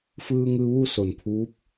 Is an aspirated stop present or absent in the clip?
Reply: present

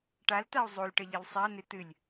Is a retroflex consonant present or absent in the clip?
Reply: present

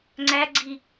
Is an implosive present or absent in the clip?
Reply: absent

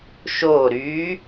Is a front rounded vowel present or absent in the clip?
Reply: present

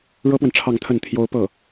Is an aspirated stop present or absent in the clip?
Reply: present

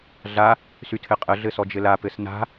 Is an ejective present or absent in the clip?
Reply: present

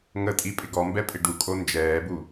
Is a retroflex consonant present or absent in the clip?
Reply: present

